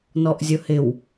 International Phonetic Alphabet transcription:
nɔʔzʲʊhɪw

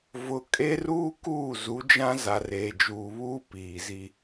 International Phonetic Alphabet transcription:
vʊ˨ kʼe˦ruː˦ kuː˦˨zu˨˦d͡ʒã˦ za˨reː˨d͡ʒuː˨βuː˦ piː˨zi˦

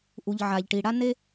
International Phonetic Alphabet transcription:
ʔu˩ʎ ʕa˩ʎʈi˩ɽa˥ ne˥

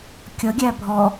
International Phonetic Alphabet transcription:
kʲʌ ɡʲæbʱɔ

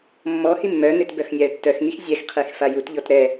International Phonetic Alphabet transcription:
mːɔhi mːœn̪et bœxnʲaə̯tːœxŋix zʲɛxqʰex fajutʎɔt ɾɛ

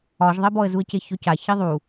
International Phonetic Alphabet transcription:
ɒʒðˤebɔə̯zuə̯ ceçɔca çiðˤu

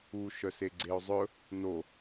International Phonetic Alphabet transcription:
u ʃœseɡ͡ǀeo̯zˤɵ | no

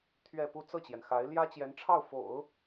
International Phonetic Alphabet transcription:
t̪ʰɥɛ˥˧pu˥˧ t͡sɤ˥˩t͡ɕjɛ˩nxa˧˥ɪ̯ ljä˥t͡ɕjɛ˧˥nʈ͡ʂʰɑ˥˩ʊ̯ fo̰˨˩˦ʊ̯

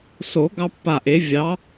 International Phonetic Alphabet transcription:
so˨˩˦ ɡɑ˦pːa˧˩ʔe˨˦ vʲɑ˨˦

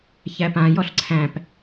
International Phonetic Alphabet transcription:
çæpãjɔɬ ǀʰæ̃p

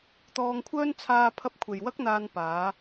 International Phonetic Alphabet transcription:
t̪ɔː˧ŋkʷʰœː˥n t͡sʰaː˧pʰɐ˧p̚ kʷʰe˨jwɐ˥k̚n̪aː˧n paː˨˧

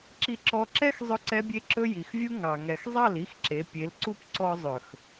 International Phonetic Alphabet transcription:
ǁi˧ǁɔ˧ǁɛ˦x zˤɵ˦ǀɛ˦bʲe˦ǁɵ˦ ji˨xvʲu˦ ŋɑ˨ ŋɛ˨xzˤɑ˦˨l i˦xǁe˨˦ pʲe˨˦lǀu˦p ǀɔ˧zˤɵ˨x

